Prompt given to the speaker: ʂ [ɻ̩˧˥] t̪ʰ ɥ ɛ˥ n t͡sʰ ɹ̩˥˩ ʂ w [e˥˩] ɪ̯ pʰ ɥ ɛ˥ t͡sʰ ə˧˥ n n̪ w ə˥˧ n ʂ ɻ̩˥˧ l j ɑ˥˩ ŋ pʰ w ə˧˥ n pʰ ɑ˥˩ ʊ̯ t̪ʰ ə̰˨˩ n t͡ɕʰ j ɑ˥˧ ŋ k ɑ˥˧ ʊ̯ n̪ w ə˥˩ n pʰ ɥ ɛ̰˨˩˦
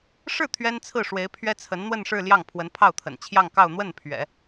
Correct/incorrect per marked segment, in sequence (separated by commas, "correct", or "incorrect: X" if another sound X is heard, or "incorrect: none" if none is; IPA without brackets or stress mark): incorrect: ɻ̩˥˩, incorrect: e˧˥